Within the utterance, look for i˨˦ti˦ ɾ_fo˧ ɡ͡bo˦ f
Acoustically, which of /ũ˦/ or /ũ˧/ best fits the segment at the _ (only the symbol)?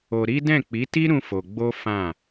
ũ˦